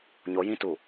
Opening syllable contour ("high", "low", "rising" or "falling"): rising